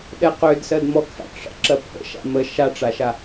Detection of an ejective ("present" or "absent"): absent